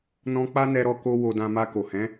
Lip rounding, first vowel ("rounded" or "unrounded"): rounded